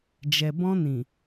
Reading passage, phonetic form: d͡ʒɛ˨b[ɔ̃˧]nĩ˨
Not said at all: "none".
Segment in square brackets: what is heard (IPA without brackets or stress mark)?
ɔ̃˧